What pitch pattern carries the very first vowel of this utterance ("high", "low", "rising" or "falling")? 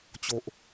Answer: low